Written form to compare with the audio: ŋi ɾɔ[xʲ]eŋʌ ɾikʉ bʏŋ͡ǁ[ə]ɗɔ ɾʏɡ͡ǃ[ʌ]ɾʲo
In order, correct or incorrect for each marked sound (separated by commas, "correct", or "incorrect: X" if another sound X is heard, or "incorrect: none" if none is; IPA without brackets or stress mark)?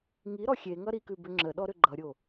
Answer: correct, correct, correct